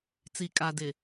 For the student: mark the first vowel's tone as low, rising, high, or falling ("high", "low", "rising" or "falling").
low